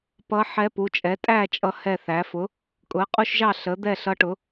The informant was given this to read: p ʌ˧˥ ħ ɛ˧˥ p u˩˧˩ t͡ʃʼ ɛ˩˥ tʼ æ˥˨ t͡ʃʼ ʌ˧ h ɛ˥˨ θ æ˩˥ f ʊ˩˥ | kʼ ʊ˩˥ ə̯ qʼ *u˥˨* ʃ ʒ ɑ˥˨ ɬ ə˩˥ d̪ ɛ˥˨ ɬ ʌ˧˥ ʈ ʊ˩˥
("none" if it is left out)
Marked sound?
u˥˨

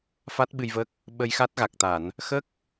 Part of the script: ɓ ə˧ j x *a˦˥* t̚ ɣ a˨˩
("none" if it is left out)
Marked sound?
a˦˥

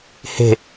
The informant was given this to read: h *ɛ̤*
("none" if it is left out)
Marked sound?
e̤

